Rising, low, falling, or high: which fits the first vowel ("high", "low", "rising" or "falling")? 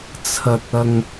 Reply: low